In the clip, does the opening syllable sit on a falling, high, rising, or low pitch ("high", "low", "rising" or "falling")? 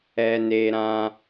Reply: high